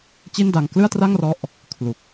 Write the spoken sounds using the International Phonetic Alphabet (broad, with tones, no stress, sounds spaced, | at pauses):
t͡ɕ i˥˩ n d a˧ ŋ k l ɯ˥˩ a̯ t r a˥˩ ŋ r ɔ˦˥ ʔ | kʰ l u˨˩ k̚